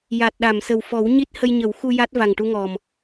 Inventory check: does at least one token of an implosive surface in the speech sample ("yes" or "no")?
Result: yes